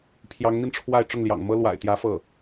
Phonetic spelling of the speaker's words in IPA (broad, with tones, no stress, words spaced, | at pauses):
pʰjɑ˧˥ŋn̪i˧nʈ͡ʂʰwa˥˧ɪ̯ ʈ͡ʂʊ˥˩ŋljɑ̰˨˩ŋmɤ˥ lwa̰˨˩ɪ̯t̪jä˧˥ fɤ˥˩